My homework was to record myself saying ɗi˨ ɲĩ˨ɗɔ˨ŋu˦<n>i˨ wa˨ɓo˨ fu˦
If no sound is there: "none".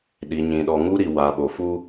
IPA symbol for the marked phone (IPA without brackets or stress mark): ɾ